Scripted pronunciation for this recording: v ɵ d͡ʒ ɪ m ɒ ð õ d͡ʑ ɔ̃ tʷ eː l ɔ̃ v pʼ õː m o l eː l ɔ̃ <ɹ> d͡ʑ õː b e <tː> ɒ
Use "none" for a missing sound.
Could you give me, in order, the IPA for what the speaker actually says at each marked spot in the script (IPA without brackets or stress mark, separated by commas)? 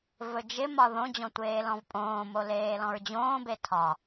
ɹ, tʰ